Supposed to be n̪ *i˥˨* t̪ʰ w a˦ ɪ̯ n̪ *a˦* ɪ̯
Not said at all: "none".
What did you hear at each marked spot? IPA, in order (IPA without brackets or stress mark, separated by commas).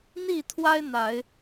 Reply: i˥˨, a˨˦